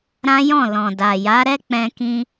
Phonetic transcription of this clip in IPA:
ɾã˦ jɔ̃˦˨lɔ̃˨ da˨ja˨˦ɾɛ˦k͡pɛ̃˧ kĩ˧

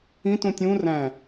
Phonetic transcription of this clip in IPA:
ĩtũ tʲũ ræ̃

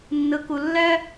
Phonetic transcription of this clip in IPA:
nːə˩˧kʊ˩ lːæ˥

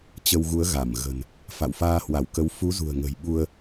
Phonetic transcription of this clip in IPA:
t͡ɕə˧wɣu˨˦ə̯ɣa˧˩m ɣə̤˨˩n | fa̰˧˨wfaː˧hwa˧˩wkə˨˦w fu˨˦zṳ˨˩ə̯ŋə̤˨˩j ɓu˧ə̯

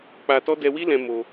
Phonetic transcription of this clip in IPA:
k͡pa˧tɔ˦ dɛ˧wi˦lɛ̃˧ mo˧

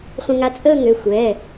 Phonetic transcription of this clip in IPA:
χʷə̃˧ŋa˧t͡sʼəː˥˧ŋø˩˧˩ xʷɛ˩˧˩

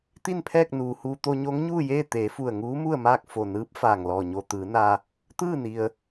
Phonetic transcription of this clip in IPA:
t̪i˥˨npʰɛː˥˨k̚ nuː˩huː˧ t̪o˧ɲo˧˥ŋɲuː˥˨jeː˥˨ t̪eː˩˧fu˧˩ə̯ ŋuː˧˥mu˥˨ə̯maː˥˨k̚ fo˧˩nɯː˧˥p̚ faː˧˩ŋlɔː˧˩ɲo˧ t̪ɯː˩˧na˧ | t̪ɯː˥˨ ni˩ə̯

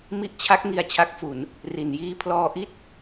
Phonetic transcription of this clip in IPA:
mi˦˥ʔt͡ɕʰa˦˥k̚ ŋi˧a̯t͡ɕʰa˦˥k̚fu˩˦n | ri˩˦njiː˧ pʰlɔː˧ʔi˥˩t̚

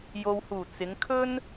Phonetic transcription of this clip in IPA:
jo˨whuː˨˩ t͡sɪ˨˧ŋkʰɵ˥n

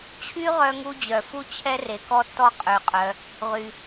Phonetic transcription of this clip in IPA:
t͡ɕʰy˥ ʁœ˥ŋu˥ d͡ʑœ˩ fu˥t͡ɕʰɛ˥re˩ kɔ˥tːɔ˥ qʼø˩qʼœ˩ | ʁy˩

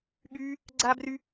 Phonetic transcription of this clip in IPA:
ɠy | ɡ͡ǀabry

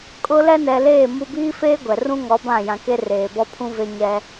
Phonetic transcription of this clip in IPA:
kʼʊ˨ lɛ˦nɛ˨leː˦˨ mu˨biː˦feː˦ ɡʷɛ˨ rũ˦ ŋɔ˨˦bã˦˨jã˨ke˦ reː˨bɔ˦pʰũ˦ ve˦ɲɛ˦

